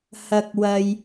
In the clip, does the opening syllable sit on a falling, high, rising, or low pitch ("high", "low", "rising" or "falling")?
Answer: low